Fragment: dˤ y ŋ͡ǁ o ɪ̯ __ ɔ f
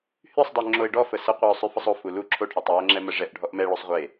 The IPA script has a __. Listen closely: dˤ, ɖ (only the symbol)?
ɖ